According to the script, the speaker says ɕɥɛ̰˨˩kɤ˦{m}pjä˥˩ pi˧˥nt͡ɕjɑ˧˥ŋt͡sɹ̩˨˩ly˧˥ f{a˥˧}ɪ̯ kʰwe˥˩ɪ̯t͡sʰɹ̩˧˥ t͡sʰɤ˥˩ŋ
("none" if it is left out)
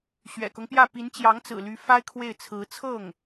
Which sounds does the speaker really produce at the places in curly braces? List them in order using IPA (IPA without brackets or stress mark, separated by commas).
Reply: ŋ, a˥